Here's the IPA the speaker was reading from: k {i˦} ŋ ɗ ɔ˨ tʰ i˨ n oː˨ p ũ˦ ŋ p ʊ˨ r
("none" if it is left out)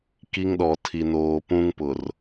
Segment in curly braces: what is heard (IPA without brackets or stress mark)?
i˦